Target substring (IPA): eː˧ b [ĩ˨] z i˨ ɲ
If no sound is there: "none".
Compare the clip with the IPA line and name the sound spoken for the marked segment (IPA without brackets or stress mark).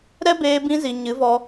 ĩ˧